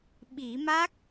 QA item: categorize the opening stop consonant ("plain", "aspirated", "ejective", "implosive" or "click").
implosive